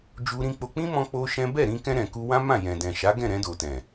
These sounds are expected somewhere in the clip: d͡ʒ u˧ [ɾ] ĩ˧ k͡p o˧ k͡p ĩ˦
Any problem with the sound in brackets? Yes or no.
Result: no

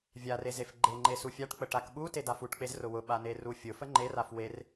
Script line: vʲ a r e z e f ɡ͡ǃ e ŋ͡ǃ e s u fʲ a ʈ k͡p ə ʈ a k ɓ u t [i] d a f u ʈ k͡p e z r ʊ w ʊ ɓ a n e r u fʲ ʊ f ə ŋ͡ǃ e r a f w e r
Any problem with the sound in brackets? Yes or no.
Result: yes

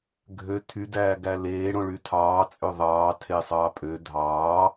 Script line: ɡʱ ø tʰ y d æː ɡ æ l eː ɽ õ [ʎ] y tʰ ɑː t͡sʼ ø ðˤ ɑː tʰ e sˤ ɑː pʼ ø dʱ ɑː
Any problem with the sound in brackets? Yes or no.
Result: yes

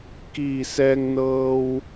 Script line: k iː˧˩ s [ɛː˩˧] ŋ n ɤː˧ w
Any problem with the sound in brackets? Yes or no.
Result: yes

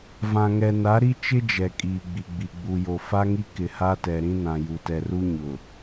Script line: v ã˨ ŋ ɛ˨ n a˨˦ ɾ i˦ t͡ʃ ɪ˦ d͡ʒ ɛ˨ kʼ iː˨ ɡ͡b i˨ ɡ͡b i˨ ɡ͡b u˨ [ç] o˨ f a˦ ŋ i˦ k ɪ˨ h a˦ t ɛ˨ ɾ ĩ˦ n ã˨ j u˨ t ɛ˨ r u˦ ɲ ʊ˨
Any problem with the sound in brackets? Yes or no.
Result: yes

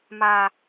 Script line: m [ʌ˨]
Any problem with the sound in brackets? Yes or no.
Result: yes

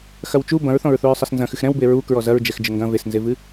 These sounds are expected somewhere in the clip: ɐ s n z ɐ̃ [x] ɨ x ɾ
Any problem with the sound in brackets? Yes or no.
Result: no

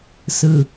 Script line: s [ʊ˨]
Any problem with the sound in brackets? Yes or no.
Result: yes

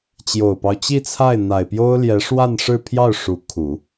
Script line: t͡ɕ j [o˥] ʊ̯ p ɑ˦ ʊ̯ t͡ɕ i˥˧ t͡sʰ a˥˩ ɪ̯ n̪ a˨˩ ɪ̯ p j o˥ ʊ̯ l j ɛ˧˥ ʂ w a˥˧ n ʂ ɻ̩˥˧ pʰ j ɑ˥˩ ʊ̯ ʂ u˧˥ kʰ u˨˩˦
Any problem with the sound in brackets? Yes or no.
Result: yes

